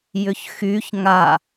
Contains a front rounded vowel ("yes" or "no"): yes